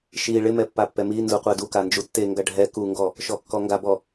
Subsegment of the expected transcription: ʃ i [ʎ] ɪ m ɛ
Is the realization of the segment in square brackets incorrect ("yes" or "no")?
yes